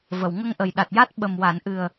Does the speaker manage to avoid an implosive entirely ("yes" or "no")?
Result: no